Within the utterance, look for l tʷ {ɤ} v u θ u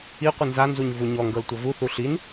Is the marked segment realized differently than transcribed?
no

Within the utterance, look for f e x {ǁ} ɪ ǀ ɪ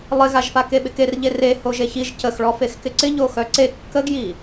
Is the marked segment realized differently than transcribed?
yes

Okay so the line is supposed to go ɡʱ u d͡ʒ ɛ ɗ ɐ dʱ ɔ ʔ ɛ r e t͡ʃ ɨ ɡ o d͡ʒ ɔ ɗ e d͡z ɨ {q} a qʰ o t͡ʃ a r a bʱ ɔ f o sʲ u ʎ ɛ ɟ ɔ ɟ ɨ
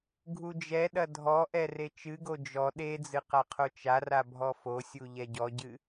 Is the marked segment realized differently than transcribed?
no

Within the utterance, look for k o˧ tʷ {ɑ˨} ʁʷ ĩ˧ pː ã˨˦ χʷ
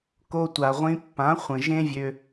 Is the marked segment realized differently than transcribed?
yes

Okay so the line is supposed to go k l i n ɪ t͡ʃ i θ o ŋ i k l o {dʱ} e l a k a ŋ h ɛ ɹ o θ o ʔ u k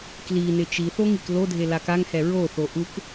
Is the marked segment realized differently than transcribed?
no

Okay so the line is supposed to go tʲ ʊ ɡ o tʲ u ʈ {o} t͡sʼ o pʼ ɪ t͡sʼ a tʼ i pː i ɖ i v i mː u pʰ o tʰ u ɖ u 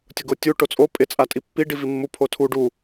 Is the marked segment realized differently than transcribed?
no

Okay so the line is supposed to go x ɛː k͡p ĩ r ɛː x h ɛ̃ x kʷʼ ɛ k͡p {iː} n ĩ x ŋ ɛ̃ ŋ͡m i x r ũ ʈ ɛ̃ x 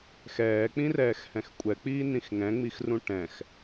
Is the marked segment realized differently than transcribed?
no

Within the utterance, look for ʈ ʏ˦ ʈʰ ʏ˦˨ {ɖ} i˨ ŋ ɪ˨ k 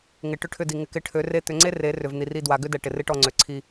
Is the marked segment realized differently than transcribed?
yes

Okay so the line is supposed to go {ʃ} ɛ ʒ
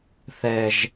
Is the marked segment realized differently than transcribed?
yes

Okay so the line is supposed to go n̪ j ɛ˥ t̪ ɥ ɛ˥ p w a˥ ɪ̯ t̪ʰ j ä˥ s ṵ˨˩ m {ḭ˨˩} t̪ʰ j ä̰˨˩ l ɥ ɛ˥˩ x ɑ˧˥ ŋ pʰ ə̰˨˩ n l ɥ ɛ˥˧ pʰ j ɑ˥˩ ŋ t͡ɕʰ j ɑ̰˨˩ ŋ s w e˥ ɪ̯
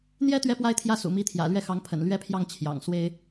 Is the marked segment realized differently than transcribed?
yes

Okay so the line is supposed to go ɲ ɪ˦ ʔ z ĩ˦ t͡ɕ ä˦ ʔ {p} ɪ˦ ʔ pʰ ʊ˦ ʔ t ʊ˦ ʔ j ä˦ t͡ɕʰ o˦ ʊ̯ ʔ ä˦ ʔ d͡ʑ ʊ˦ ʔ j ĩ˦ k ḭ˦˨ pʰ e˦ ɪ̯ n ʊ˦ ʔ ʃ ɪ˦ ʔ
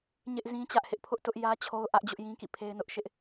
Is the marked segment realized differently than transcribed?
yes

